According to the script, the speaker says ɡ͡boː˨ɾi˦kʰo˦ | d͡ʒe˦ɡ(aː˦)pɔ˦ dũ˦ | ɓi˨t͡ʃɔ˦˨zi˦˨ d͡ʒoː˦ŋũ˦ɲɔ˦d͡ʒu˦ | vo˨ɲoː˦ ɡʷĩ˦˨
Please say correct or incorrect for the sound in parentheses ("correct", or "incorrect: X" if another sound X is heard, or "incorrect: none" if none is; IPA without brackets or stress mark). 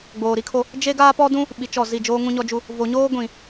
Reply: correct